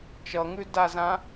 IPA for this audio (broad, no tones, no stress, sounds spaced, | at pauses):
t͡ʃ ʌ ŋ ʉ d a z ã